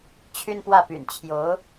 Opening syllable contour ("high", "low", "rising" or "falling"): high